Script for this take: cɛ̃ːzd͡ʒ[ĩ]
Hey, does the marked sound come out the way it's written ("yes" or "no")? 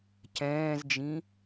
yes